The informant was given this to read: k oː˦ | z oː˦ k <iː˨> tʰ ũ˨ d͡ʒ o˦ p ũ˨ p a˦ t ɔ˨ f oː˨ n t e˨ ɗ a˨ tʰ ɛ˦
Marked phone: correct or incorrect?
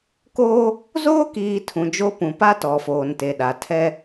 correct